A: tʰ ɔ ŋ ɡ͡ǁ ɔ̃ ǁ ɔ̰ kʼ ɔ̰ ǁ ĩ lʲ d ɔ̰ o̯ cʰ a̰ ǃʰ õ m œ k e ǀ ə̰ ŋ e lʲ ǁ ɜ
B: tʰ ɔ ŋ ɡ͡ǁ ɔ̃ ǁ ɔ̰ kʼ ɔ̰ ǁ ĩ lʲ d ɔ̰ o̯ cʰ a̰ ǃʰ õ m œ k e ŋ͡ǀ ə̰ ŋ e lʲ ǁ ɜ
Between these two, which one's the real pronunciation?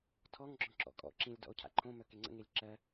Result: B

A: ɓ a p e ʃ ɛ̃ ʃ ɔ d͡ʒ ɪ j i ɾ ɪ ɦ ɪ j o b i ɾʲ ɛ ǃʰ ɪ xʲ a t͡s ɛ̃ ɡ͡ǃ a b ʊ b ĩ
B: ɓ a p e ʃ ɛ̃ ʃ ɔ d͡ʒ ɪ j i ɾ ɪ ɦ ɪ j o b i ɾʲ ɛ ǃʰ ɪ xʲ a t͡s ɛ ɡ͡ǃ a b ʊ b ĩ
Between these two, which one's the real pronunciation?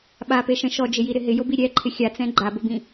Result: A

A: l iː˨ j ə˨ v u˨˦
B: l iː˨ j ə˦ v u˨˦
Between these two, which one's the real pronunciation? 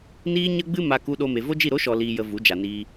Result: A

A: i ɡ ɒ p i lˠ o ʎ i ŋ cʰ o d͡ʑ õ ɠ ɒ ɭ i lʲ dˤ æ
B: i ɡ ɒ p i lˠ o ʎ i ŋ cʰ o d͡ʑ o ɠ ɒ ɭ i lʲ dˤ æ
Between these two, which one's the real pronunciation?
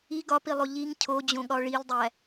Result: A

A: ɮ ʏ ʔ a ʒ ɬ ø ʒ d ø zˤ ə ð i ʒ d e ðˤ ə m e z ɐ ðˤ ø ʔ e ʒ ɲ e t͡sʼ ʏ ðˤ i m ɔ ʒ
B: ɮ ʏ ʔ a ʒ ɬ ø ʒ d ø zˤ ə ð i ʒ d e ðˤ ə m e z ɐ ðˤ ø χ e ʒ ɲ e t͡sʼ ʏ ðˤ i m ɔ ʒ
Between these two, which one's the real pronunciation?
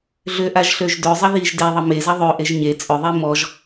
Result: A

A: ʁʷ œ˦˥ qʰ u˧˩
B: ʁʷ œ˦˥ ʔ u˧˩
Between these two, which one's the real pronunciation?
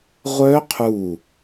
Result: A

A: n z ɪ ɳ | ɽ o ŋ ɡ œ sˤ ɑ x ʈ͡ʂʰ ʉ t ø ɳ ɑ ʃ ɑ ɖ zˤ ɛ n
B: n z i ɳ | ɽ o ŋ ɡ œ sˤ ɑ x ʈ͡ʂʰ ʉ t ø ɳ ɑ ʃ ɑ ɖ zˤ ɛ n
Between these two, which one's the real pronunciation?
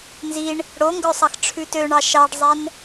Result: B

